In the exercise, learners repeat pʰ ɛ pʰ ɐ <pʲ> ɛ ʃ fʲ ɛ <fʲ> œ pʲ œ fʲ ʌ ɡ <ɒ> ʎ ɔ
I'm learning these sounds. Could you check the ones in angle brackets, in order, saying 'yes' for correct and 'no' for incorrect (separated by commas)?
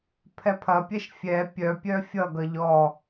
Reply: yes, no, no